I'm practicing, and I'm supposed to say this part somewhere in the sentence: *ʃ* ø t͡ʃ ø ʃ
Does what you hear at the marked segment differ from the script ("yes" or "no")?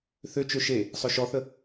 yes